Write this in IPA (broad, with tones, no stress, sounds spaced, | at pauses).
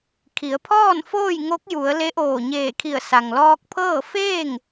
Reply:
kʰ i˩˧ ə̯ pʰ ɔː˥˨ n f oː˥˨ j ŋ o˧˥ k̚ j u˩˧ ə̯ l e˧˥ ʔ oː˧˩ ɲ eː˧˩ kʰ i˧˩ ə̯ s a˩ ŋ l ɔː˧ k̚ pʰ ɤː˥˨ f eː˥˨ ŋ